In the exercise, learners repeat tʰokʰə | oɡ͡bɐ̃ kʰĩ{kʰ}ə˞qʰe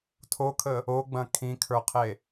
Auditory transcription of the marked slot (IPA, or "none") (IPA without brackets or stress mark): kʰ